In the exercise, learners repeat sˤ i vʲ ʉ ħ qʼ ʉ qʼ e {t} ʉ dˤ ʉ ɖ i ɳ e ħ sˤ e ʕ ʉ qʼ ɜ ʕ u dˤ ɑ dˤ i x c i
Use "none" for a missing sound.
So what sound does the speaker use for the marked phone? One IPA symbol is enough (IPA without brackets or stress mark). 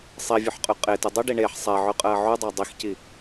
t